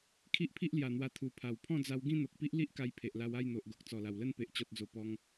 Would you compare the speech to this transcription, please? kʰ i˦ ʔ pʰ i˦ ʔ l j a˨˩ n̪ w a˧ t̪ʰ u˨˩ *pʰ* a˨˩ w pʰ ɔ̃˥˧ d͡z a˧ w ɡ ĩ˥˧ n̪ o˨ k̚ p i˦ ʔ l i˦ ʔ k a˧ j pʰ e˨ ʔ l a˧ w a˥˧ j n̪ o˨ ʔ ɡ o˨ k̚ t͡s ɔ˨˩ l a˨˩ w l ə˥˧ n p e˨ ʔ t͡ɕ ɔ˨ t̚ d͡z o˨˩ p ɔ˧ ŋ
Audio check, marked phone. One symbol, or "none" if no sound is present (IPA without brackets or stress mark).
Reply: pʰ